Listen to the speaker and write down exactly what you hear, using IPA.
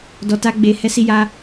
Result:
d ɔ˨ t a˧ ɡ͡b e˨ h ɛ˧ s i˧ j a˧

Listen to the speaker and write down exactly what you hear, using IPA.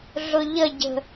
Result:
ɮ ʊ ʎ ə ɟ ə̤

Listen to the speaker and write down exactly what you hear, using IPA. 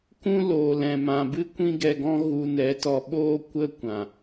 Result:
k ũ˦ l oː˨ l ɛ̃˨ m ã˨ b ɨ˦ kʷ ĩ˦ ɡ ɛ˧ ɡ ɔ̃˦ ɣ u˧ n ɛ˨˦ t ɔ˧ ɓ oː˦ kʷ ə˦ kʷ ã˨

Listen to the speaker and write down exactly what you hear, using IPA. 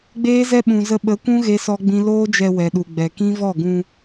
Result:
ɡ͡b eː˦ z ɛ˦ ɓ ũ˨ z ə˧ ɓ ə˨˦ kʷ ũ˦ ɣ e˦ s ɔ˦ ɡ͡b ĩ˦ l oː˦ d͡ʒ ɛ˧ w ɛ˨ ɗ u˨ ɡ͡b ɛ˨ k ĩ˦ v ɔ˦˨ ɡ ũ˧

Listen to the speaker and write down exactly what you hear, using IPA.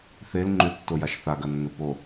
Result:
θ e l ŋ͡ǃ ʉ tː o j a ʃ θ a ɡ ɐ nː ɵ p o

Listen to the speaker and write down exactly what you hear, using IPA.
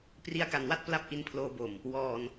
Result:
p r i˧ a̯ k a˨˩ n w a˥˩ t̚ p l a˥˩ p̚ ʔ i˧ n pʰ l oː˧ b o˨˩ m | w ɔː˧ n

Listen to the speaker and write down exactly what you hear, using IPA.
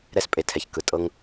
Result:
ɾ ɛ˦ s pʼ e˧ tʰ ɛ˨ ç k ɯ˨ tʼ ɤ˦ ŋ

